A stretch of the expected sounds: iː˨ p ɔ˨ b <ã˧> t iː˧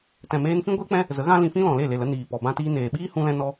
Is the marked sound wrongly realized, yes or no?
no